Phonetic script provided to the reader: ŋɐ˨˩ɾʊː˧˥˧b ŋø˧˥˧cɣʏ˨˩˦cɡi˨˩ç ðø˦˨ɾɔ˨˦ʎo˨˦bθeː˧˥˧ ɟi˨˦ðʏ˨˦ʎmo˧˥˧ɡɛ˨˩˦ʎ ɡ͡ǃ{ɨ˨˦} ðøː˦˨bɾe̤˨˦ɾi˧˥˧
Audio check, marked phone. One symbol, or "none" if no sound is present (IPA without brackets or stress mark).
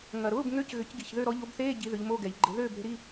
ɪ˨˦